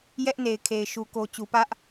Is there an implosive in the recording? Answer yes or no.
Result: no